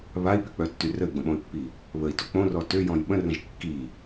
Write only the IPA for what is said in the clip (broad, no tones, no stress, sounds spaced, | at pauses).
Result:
β a i̯ p y k͡p œ tː y r ə y̯ ɡ͡b ə̃ ɓ õ y̯ pː i | β ə i̯ t o k͡p õ r ɔ t ø j ɔ̃ j ɓ ə̃ r ə̃ ʒ kː i